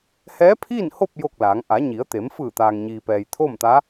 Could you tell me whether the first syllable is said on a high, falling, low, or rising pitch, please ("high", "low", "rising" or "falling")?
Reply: rising